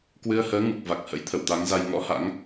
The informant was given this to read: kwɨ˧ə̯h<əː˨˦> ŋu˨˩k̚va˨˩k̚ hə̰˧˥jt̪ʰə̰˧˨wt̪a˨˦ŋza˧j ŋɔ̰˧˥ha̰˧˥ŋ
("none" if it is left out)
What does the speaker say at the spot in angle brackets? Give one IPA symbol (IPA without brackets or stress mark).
əː˨˦